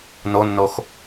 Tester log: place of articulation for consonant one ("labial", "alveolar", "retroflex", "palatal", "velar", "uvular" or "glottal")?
alveolar